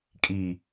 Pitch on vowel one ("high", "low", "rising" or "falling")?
low